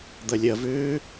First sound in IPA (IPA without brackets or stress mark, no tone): d̪